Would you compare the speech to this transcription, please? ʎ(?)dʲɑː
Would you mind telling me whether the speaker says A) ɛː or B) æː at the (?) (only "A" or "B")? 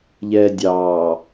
A